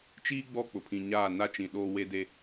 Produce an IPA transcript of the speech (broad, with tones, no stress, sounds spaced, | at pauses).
t͡ʃ iː˦ ɡ͡b ɔ˦˨ k͡p ʊ˨ pʰ ĩ˨ ɲ aː˦˨ n a˦ t͡ʃ ĩ˨ ɗ oː˦ w e˦ d e˦